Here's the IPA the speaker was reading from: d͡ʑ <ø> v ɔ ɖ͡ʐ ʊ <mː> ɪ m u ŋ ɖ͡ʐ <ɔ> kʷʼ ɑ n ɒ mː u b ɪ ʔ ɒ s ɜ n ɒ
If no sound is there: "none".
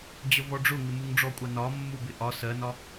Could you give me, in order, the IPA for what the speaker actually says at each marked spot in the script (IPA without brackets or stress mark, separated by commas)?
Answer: ə, ŋ, ɔ